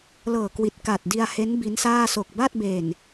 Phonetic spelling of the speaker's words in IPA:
l ɤː˨˩ k w i˨˩ t̚ k a˨˩ t̚ d i˧ a̯ h e˦˥ n b i˦˥ n s aː˥˩ s o˨˩ k̚ b a˥˩ t̚ b e˨˩ n

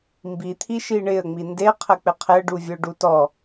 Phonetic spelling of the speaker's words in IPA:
m b i t̪ʰ i ʃ i ɳ ɪ ə̯ ŋ͡m i n d e qʰ ə k͡p ɪ qʰ ɪ ə̯ ɖ u vʲ ə ʊ̯ ɖ u t ɔ

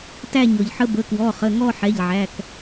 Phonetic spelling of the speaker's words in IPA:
t æ˥˧ ɲ ɔ˩ ʎ ħ ə˧ b ə˩˧˩ k w ɔ˩˧˩ χ ə˩˧˩ ŋ ɔ˥˧ ħ ɛ˩˧˩ ʎ ʕ æ˩˧˩ k

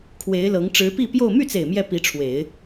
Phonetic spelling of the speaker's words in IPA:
kʰ w e˧˥ ɪ̯ l ɤ˧˥ ŋ ʈ͡ʂ ɻ̩˧˥ p i˥˧ p j o˥˧ ʊ̯ m y˥˩ t͡s e˨˩ ɪ̯ m j ɛ˥˩ p i˧˥ ʈ͡ʂʰ w e˨˩˦ ɪ̯

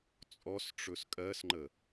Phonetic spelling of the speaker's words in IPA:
t͡sʼ ɔ s ʈ͡ʂ ɵ s kʼ ɜ s ŋ͡ǃ ə

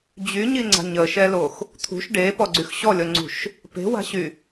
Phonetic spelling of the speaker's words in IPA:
d͡ʑ y ɲ i ŋ͡ǀ a̤ ɲ ə ʃ ɛ l o x | t̪ʰ ṳ ʃ ɖ e p ɔ ɡ͡ǀ y x ɕ ɔ lʲ ɔ ŋ͡ǀ ṳ ʃ | p e̤ w a̤ ɕ y

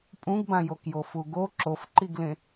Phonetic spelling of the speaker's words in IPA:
pʼ ũ ɡ b ã j o k j o f u ɡ o ǁ o f ǃ i ɡ l ẽ

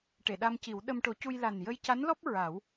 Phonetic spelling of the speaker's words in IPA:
ʈ e˨˩˨ ɗ a˧ m c i˨˩˦ w ɗ ə˧ m ʈ o˨˩˦ c u˧ j l a˨˩ n j ə˧ j c a˧˥ n l ɔ˦˥ p̚ ɹ a˨˩˦ w

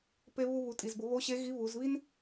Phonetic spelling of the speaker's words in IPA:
p e˧ β u˧ β u˩˧ tʼ i˩ z b ʊ˩˧ β o˧˥ ɕ e˧˥ ɣ i˧˥ β u˩˧ z β i˥ n

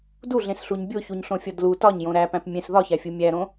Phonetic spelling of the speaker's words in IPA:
d u ɮ ẽ s ɬ u ɲ bʲ o ç u ɲ ɬ õ fʲ ɒ d l u t ɒ ɲ j õ ɾ æ p æ̃ p mʲ ẽ s ð ɒ ç æ fʲ u mʲ æ ɾ õ

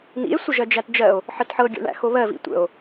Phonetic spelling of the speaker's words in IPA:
n̪ ḭ e̯ sʷ ə ʒ ɜ d͡ʒ æ t d͡ʒ ɜ o̯ | ħ ə t ħ ɤ ɡʲ o̰ ɳ æ̰ x o β ɜ v ḭ tʷ ə̰ o̯

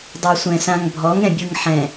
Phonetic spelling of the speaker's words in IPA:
dˤ ʏ ɐ̯ sʷ ɛ̃ s ã ŋ bʱ ɔ ŋ ɛ̃ bʲ ɯ ŋ ħ ɛ̃

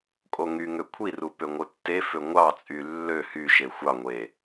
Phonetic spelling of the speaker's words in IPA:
kʼ o ŋ y ŋ ø kʷʰ i r u p ø ŋʷ ɯ tː e f ø ŋʷ ɑ t͡sʼ y lː ø h y ʃ e xʷ ɑ ŋʷ e

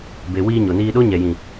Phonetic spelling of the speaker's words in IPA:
b e˨ w iː˧ ɲ o˨ n iː˧ ɗ o˦ ɲ ɛ˨ j ĩ˨

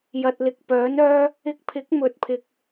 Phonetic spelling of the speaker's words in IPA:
j ɐ˨ t̚ l ɪ˨ k̚ p œː˨˥ n œː˥ | ɪ˧ k̚ pʰ ɪ˨˥ k̚ m ɵ˨˥ t̚ pʰ ɪ˨ k̚

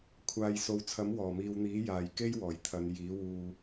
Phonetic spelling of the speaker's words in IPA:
kʷʰ aː˨ j s o˨ w t͡sʰ ɐ˨˥ m w ɔː˨˩ m iː˨ w n̪ iː˨˥ j aː˨ j k e˥ j w ɔː˨˩ j t̪ʰ ɐ˨˧ n j iː˨˥ w uː˨

